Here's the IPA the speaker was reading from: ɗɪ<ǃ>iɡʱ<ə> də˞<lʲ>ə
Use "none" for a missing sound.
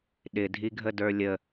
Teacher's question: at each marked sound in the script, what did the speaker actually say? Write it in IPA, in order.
dʱ, ə, lʲ

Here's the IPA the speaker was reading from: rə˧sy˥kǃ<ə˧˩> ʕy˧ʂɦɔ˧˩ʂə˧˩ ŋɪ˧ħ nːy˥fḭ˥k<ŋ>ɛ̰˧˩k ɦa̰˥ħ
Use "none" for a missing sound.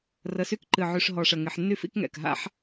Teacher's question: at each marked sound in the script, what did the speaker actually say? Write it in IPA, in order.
ɨ˧˩, ŋ

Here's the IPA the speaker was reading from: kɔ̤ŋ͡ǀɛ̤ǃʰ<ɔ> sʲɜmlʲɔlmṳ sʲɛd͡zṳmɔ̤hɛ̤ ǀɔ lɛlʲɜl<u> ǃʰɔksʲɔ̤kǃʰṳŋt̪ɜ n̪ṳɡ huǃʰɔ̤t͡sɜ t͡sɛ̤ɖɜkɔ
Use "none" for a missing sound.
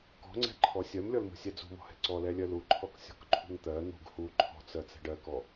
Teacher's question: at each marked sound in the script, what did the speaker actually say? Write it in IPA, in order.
ɔ, u

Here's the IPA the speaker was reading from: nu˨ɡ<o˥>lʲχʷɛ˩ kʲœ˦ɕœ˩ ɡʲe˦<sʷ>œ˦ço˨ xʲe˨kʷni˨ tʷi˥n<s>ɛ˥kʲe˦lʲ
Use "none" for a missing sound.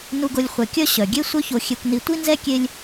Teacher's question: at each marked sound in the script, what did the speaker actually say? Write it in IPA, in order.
o˨, sʷ, z

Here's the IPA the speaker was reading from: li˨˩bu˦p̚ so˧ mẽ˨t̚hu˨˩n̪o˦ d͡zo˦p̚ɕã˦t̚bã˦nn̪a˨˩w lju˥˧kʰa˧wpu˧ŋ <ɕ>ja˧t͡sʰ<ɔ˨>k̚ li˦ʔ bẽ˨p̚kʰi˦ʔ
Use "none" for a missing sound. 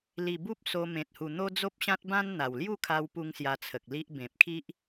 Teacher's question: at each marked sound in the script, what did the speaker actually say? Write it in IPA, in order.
s, ə˨

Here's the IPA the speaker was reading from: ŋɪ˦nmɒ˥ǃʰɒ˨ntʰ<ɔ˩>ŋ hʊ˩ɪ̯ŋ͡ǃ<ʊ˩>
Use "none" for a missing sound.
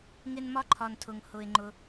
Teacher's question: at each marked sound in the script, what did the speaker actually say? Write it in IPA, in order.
ʊ˩, ʊ˩

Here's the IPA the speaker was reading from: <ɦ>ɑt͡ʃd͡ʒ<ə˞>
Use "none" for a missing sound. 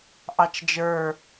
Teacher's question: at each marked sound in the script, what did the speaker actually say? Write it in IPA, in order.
ʔ, ə˞

